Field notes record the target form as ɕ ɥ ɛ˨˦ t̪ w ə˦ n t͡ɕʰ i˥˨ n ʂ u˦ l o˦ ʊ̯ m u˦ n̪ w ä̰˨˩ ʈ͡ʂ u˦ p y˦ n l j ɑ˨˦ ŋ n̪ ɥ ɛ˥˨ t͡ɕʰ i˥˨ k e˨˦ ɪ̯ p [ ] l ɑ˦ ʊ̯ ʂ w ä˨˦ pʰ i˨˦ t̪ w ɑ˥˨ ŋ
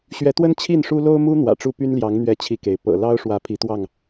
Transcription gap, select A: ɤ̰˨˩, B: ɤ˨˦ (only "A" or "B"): A